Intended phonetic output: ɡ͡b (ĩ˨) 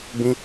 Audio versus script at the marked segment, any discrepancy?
yes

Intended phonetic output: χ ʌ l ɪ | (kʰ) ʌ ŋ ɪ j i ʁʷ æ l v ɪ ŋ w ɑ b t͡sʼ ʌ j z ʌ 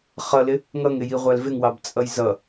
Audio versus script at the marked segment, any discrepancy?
yes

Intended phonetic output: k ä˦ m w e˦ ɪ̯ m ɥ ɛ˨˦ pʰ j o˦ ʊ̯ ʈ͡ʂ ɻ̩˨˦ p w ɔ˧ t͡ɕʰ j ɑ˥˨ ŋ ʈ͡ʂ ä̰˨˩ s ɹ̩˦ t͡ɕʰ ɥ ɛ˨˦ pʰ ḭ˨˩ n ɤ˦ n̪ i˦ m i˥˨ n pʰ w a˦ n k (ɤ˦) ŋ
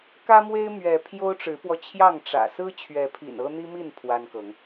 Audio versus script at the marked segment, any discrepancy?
yes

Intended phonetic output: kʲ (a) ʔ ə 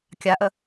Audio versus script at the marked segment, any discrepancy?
no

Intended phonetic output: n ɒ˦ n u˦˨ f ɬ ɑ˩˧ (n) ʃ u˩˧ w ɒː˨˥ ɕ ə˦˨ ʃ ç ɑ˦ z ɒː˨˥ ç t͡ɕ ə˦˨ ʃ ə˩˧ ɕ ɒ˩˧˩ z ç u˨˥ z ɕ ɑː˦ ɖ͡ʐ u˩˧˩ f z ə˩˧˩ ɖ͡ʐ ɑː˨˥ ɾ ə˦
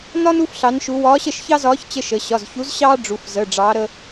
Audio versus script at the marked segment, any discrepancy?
no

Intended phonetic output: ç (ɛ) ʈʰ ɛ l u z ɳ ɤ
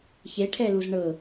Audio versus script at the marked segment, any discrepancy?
yes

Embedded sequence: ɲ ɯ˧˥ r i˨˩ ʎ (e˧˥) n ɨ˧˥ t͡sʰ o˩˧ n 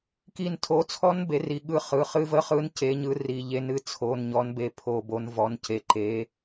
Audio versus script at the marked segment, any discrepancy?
no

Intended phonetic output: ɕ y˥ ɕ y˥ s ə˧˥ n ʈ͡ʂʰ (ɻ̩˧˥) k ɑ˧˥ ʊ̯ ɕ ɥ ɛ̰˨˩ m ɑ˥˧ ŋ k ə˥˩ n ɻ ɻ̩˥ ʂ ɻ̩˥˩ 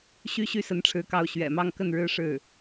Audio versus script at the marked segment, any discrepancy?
no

